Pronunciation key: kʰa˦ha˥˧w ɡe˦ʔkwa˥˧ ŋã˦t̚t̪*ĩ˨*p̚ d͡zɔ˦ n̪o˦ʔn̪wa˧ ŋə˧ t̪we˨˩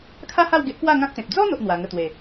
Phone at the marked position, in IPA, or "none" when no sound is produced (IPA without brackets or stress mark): ẽ˨